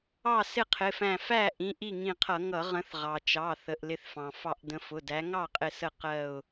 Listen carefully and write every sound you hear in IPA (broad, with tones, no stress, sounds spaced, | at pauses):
ɑ˥˨ s ɪ˥˨ qʰ ɪ˩˧˩ f æ̃˧˩ f æ˥˨ ʔ ĩ˩˧˩ ʔ i˥˨ ŋ ĩ˧˩ qʰ ʌ˧˩˧ ŋ ʌ˧˩˧ ʁ ə̃˨˦ θ ʁ ɑ˩ t͡ʃ ɑ˩˧˩ θ ə˩˧˩ ʔ l ɪ˧˩ θ f ɑ̃˩ f ɑ˧˩ ʔ d ə̃˨˦ f ʊ˩˧˩ d æ˨˦ ŋ ɑ˥˨ qʼ ɪ˧˩ s ə˧˩ q ɜ˧˩ ʊ̯